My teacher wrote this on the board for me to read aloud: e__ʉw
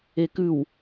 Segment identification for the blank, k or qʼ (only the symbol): k